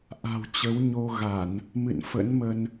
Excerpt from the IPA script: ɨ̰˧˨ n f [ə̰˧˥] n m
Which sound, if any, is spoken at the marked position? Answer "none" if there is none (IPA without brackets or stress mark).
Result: ə̰˧˥